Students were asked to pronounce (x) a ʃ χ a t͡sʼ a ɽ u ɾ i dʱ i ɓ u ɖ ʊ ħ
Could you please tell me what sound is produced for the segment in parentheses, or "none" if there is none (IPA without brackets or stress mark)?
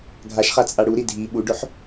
ɡʱ